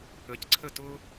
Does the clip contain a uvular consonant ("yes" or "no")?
no